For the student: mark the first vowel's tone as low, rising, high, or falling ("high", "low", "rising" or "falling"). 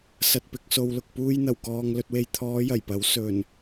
low